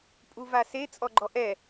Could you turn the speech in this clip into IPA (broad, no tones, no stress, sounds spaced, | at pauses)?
pʼ u v a s e t͡sʼ ɔ ɡ͡ǃ ɔ ʔ ɛ